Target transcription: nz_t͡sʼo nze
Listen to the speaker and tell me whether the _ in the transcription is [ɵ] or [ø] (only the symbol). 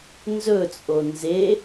ɵ